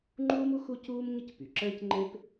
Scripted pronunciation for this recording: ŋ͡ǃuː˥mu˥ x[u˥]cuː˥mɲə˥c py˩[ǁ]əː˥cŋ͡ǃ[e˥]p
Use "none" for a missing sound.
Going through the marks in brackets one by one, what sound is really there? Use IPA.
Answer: u˥, ǁ, e˥

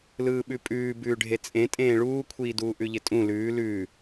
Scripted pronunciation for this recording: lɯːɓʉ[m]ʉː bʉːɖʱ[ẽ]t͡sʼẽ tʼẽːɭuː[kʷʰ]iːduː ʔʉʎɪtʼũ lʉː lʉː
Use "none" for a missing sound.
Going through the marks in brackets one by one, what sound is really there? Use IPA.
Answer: pʼ, e, kʷʰ

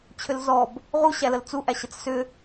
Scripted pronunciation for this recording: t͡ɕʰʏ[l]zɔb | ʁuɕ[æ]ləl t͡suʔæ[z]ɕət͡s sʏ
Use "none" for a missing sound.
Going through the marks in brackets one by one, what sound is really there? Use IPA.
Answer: l, æ, none

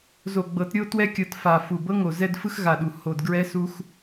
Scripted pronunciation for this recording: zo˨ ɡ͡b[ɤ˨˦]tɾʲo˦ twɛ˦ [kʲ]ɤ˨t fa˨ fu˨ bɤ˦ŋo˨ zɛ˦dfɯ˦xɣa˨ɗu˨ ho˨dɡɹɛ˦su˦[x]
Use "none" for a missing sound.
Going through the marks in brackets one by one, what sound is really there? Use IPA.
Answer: ɤ˨˦, kʲ, x

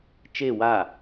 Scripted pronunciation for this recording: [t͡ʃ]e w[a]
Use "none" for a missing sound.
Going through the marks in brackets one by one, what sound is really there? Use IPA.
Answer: t͡ʃ, a

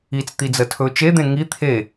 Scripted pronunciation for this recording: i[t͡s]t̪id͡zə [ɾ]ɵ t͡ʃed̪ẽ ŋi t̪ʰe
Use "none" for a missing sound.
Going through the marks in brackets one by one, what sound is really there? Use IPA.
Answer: t͡s, tʰ

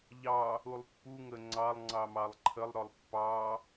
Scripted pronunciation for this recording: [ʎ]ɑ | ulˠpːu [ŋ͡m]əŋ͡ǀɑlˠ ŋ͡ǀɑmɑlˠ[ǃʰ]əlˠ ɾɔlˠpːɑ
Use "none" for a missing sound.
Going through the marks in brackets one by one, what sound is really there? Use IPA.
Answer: ʎ, ŋ, ǃʰ

